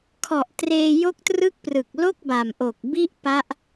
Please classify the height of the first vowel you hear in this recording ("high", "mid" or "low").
mid